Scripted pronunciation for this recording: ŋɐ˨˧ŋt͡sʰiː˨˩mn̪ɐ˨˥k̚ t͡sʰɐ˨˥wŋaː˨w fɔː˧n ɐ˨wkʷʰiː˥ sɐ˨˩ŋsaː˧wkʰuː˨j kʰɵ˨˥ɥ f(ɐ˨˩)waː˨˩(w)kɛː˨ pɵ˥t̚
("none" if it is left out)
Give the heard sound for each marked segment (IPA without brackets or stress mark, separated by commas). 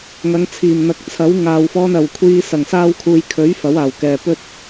ɐ˨˥, w